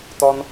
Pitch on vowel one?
low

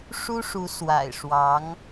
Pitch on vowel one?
high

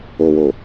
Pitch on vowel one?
low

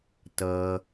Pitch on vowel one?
low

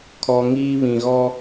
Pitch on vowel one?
low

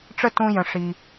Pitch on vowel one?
high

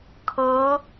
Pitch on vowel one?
rising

